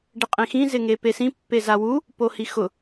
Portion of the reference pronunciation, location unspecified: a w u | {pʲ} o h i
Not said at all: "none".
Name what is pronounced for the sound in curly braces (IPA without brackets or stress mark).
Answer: p